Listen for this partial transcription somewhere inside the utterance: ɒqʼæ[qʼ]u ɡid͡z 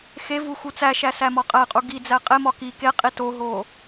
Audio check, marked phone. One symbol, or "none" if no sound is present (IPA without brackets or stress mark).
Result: qʼ